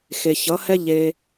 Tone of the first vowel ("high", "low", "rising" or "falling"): low